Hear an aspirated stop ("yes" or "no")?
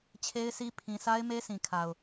yes